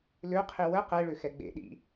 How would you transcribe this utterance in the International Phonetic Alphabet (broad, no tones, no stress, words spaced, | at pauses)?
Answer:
løqʰi wə qɛɭø xɛɡ͡bḛɗḭ